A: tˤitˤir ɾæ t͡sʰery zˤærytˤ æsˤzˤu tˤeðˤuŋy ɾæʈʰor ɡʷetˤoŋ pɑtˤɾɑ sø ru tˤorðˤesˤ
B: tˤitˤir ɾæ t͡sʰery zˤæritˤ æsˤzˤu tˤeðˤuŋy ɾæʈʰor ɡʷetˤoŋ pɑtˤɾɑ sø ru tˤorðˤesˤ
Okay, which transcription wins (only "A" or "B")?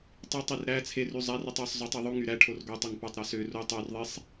A